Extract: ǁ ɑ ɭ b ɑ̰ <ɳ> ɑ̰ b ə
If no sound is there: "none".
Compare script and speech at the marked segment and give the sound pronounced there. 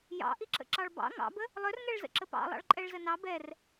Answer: ŋ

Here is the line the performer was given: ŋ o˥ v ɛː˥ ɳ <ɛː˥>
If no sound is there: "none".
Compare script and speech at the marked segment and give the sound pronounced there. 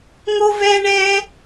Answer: ɛː˥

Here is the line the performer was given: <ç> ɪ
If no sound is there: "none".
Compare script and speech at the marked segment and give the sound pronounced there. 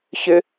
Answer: ç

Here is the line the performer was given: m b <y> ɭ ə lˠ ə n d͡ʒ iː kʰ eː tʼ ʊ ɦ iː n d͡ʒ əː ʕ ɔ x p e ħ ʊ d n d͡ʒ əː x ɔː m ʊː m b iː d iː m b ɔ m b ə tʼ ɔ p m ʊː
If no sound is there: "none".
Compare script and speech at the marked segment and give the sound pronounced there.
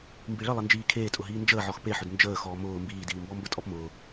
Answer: i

